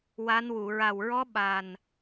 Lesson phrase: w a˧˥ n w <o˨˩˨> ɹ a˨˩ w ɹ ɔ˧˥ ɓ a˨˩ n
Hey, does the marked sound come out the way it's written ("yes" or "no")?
no